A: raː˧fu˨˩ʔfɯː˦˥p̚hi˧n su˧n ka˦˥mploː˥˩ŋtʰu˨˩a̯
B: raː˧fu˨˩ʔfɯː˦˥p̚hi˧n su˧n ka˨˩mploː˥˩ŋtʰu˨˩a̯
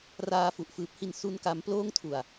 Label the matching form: A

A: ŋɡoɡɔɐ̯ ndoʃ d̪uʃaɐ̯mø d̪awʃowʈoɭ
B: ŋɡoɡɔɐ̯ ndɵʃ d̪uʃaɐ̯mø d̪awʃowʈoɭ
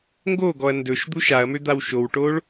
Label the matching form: B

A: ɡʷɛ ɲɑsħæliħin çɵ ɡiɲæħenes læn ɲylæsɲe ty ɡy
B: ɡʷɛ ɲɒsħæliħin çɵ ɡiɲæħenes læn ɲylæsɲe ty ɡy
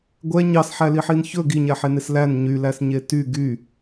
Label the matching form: A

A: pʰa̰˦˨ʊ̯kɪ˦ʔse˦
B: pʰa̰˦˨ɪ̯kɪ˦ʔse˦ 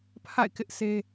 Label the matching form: B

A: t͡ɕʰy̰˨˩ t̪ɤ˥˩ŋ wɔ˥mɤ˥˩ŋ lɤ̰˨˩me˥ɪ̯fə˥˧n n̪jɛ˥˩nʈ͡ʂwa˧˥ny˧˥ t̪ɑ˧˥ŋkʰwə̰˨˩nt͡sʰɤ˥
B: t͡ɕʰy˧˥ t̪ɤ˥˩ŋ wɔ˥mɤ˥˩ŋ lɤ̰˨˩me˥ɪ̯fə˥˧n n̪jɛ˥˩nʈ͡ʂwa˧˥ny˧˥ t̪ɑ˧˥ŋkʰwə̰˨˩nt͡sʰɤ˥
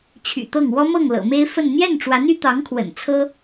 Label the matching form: A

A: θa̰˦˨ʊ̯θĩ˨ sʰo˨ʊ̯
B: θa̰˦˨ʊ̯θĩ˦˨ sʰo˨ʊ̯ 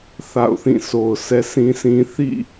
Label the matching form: B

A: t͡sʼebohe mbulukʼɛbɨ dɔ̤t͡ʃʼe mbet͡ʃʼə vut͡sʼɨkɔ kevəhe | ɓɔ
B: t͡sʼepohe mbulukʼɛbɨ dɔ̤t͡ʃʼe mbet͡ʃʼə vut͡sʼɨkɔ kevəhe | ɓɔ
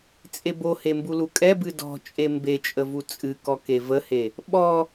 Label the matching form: A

